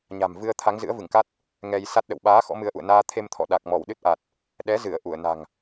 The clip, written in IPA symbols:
ɲa̤˨˩mvɨ˧ə̯ t̪ʰa˨˦ŋzɨ̰˧˥ə̯vɨ˧˩ŋka˦˥t̚ | ŋɛ˧jsa˦˥t̚ɗə̰˧˨w ɓaː˨˦ xɔ̰˧˥mɨ˨˦ə̯ʔṵ˧˨ə̯ naː˧t̪ʰe˧mt̪ʰɔ̰˧˨ɗa˨˩k̚ mɔ˧˩wɗɨ˦˥t̚ʔa˨˩t̚ | ɗɛ˨˦zɨ˧˩ə̯ ʔu˧˩ə̯na̤˨˩ŋ

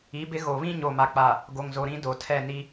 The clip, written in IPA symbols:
i˨˦bɪ˦ ɣo˨βĩ˦ ɲo˨ma˨k͡pa˨ | ɡo˨ŋzo˨ ɾĩ˦do˨tʰɛ˦˨ ni˦

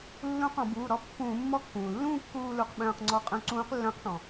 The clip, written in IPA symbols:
lːũ˧˥qɔ̃˧˩˧ buː˩˧˩ɾɔ˧˥pːũː˧˩˧ mːɔ˧˥kːũː˩lːũː˥˧ kːuː˥˧lu˧˩˧q ɓœ̃ː˥˧qŋ͡ǀɔ˥˧ qʼœ̃˧˥ǀũː˧˥qlːœ̃˧˥q ʈɔ̃˩

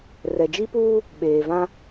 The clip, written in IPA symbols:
rɛ˨d͡ʒi˦puː˦ | ɓeː˨vã˦

